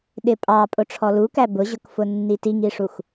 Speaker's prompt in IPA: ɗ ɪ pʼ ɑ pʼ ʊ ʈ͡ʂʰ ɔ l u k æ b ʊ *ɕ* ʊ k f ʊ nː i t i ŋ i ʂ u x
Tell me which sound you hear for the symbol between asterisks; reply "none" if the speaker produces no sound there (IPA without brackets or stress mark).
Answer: ʑ